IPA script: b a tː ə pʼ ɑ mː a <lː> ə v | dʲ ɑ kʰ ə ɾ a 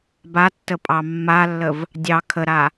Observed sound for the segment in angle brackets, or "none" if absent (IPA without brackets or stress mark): lː